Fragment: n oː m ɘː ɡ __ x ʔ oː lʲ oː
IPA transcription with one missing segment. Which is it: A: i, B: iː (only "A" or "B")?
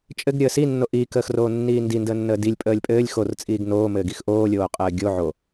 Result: A